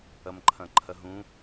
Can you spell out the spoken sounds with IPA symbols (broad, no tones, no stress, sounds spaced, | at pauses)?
ɐ m ǃʰ ɐ̃ ǃʰ ɐ ɦ ũ